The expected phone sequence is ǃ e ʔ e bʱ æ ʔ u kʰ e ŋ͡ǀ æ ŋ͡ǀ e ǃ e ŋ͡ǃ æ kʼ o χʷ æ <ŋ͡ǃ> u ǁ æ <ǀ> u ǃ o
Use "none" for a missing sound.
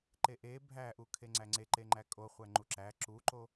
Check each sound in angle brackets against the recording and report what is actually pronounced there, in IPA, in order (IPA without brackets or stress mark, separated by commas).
ŋ͡ǃ, ǁ